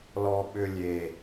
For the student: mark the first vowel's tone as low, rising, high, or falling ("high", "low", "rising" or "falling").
low